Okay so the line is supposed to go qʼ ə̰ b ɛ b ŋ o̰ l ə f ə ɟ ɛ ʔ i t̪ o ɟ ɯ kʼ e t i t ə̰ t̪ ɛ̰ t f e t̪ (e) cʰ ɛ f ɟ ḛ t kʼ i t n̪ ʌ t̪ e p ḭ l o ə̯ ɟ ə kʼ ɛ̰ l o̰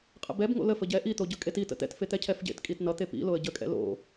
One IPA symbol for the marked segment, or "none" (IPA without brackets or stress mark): ɛ